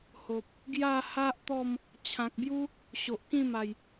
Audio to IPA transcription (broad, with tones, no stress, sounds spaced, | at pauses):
h o˨ p̚ | ɡ j a˥˧ h a˦ ʔ t̪ ɔ˥˧ m | t͡ɕʰ ã˨ k̚ b j u˦ | ɕ o˨ ʔ k ĩ˥˧ m a˨˩ j